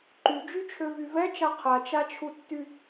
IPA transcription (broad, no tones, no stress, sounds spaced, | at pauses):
ǃ y d͡ʒ y t͡ʃʰ ø v y v ɛ t͡ʃ a qʰ a t͡ʃ a t͡ʃʰ u tː y